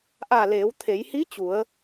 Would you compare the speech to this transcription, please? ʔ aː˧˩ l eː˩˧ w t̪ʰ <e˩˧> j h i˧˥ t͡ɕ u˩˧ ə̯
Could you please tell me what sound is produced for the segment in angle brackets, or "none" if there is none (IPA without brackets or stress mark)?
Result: e˩˧